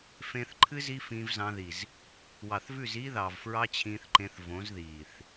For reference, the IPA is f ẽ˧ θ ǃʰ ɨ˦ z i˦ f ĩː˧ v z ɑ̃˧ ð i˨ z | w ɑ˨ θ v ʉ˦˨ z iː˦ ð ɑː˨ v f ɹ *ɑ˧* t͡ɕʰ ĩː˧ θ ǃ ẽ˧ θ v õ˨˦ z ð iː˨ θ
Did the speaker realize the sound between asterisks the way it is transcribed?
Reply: no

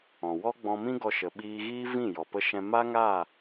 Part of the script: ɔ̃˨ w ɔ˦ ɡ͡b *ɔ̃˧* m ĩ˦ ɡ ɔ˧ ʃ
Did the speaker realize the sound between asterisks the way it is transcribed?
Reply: yes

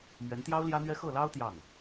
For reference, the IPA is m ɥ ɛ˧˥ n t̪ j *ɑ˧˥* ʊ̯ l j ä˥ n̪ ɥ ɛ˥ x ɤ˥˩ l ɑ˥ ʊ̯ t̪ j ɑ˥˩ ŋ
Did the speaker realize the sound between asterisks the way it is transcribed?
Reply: no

